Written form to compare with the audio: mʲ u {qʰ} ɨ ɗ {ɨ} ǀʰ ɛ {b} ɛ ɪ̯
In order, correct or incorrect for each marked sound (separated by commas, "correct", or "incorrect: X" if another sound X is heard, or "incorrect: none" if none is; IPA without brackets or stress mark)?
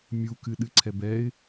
incorrect: k, correct, correct